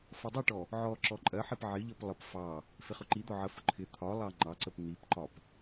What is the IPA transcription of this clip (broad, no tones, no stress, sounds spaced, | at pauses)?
f ʌ dˤ ʌ ʈ ɔ | ʕ ɔ ǁ ɔ ǃʼ ɜ ħ i p ʕ ɪ ʎ ʌ p lˠ ə p f ɑ | f ɪ χ ʊ ǃ i d̪ ɔ ʕ ə f ʊ ǃʰ ɪ t̪ʰ ɒ lˠ ɑ ŋ͡ǃ ɑ ǀ ə p n̪ i p ǃ ɒ p